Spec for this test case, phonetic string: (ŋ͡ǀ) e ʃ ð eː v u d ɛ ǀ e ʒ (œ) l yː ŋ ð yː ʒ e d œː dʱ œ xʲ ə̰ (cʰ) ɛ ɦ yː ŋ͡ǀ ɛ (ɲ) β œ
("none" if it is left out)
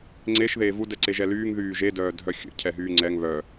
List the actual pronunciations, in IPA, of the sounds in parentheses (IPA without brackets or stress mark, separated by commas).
ŋ͡ǀ, ɛ, cʰ, ŋ